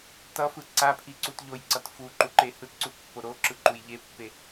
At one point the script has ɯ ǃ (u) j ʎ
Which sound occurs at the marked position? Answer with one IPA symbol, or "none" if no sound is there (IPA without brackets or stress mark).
u